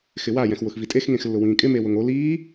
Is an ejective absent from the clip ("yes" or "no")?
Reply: no